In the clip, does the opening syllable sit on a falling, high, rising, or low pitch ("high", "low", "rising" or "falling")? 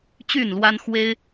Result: falling